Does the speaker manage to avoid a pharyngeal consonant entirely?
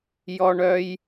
yes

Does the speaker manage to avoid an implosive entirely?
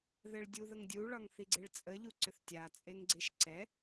yes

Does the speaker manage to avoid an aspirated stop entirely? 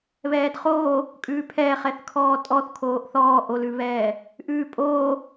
no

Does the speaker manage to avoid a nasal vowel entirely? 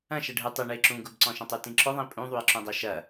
no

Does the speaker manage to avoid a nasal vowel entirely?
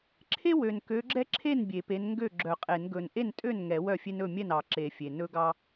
yes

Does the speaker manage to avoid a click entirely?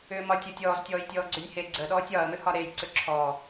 no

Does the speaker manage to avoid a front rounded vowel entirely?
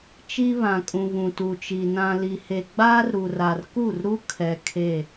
yes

